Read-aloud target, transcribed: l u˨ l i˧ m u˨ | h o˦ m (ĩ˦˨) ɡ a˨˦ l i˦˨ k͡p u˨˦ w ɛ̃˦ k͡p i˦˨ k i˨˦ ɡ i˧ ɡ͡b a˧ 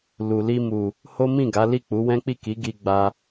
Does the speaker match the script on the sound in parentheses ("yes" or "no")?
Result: yes